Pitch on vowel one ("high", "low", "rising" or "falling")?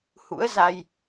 rising